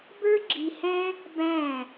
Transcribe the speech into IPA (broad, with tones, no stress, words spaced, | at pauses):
bə˞˥ɡ͡ǁi˧hɛ̃˥ | bæ̃˧˩